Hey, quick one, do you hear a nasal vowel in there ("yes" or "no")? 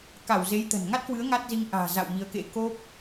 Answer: no